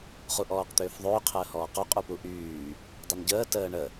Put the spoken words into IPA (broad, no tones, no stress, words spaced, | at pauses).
χuʔɔːqt̪ʏːfðˤʏː qʰəːhɔːqo qʼupuʔyː | dˤʏnɟəː təːɳə